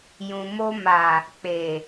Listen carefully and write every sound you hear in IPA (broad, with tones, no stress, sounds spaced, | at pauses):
j ũ˨ m o˧ m a˨ | k͡p e˨